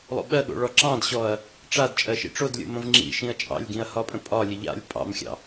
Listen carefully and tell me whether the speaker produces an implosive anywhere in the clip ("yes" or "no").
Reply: yes